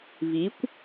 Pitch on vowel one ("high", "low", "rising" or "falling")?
rising